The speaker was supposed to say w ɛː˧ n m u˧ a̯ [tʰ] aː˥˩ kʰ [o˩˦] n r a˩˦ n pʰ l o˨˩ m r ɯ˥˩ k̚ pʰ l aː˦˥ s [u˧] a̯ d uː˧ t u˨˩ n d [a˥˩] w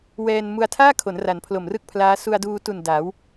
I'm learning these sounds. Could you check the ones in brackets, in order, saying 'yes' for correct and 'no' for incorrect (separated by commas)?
yes, yes, yes, no